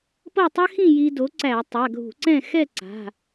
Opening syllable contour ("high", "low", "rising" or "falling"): falling